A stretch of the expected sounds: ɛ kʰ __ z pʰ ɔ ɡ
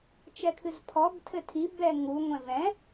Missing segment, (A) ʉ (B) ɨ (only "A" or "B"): B